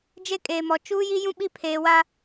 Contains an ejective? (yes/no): yes